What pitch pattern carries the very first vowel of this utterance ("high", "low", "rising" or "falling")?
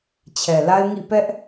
low